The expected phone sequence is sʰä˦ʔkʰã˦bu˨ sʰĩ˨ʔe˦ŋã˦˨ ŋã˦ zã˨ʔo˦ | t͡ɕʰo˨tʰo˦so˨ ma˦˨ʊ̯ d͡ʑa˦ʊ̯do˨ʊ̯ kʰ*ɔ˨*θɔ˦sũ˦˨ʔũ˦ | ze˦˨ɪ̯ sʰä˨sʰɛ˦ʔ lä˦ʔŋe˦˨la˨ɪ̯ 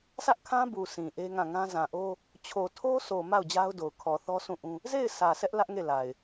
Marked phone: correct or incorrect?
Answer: correct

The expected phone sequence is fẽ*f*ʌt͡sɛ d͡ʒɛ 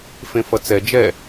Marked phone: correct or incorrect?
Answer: correct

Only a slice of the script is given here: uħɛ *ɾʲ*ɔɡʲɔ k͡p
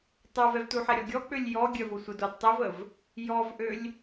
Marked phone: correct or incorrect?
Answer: correct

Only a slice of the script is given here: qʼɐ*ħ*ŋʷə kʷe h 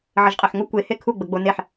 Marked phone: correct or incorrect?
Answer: correct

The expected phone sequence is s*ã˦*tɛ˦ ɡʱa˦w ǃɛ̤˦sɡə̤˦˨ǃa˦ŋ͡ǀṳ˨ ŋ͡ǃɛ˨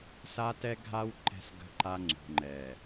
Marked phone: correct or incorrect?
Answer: incorrect: a˦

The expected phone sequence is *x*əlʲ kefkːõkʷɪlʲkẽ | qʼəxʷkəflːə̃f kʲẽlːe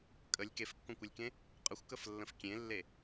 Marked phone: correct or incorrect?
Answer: incorrect: kʼ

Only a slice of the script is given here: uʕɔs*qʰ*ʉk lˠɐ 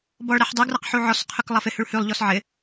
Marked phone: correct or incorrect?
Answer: correct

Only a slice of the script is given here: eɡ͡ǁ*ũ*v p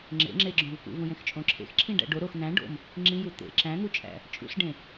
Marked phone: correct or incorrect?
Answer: incorrect: õ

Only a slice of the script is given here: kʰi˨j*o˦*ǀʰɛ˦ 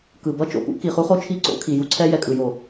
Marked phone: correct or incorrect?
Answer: incorrect: u˦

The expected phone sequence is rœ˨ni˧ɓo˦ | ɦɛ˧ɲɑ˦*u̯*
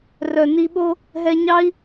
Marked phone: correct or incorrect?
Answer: incorrect: i̯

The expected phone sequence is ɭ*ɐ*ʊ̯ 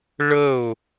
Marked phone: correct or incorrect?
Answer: incorrect: ə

